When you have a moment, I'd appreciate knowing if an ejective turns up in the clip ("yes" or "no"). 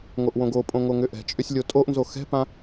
yes